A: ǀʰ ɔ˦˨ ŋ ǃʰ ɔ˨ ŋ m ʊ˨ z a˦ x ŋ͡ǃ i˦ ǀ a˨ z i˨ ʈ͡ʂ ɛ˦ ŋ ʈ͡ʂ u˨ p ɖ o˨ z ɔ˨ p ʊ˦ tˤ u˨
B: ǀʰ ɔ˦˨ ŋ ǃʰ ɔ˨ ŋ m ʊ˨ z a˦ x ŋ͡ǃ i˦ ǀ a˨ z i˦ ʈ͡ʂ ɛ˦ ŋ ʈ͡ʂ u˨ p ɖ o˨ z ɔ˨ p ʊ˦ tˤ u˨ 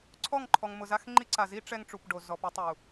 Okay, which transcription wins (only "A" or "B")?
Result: B